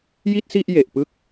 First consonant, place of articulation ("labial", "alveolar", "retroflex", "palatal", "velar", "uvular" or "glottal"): palatal